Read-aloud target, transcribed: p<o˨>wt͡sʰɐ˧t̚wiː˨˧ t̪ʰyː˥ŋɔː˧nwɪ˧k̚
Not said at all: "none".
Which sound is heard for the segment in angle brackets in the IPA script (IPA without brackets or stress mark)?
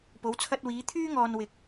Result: o˨˧